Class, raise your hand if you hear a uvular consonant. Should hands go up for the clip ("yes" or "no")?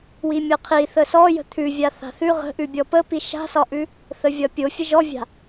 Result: yes